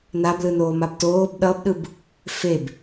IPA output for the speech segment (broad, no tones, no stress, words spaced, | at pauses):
nablɯnoːmab toːb ɗʌbɗɯb | feb